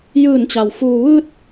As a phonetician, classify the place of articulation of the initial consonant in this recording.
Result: palatal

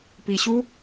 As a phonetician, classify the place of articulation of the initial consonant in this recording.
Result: labial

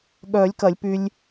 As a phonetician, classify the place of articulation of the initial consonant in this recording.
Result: velar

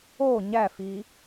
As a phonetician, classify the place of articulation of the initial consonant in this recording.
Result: palatal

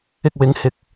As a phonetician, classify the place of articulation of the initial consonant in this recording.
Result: velar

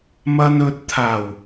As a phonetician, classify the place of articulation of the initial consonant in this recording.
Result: labial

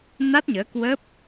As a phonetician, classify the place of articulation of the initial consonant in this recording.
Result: alveolar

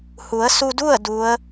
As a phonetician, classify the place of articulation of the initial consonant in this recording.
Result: glottal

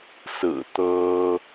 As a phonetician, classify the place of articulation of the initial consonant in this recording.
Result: alveolar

